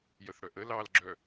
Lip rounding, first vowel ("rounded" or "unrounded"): unrounded